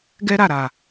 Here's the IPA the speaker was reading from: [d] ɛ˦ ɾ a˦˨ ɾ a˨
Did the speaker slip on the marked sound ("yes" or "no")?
yes